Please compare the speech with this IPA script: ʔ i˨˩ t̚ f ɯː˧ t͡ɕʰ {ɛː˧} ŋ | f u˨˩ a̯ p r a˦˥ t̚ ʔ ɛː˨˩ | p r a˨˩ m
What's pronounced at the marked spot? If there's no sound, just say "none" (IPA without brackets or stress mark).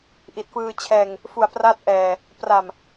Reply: ɛː˧